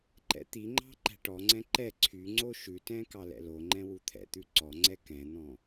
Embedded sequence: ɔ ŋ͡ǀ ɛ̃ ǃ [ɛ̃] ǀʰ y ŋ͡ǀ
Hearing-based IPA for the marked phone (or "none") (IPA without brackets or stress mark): ɛ